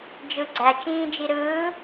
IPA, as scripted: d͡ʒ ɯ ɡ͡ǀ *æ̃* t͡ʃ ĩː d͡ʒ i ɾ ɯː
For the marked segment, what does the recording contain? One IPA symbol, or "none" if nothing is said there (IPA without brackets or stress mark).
æ